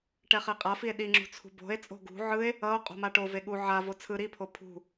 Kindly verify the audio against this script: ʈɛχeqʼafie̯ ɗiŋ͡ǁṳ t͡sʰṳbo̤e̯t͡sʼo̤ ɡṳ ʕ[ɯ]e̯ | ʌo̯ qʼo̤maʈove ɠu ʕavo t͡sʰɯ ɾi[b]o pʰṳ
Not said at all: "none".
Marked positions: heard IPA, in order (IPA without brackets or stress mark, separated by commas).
ɯ, pʰ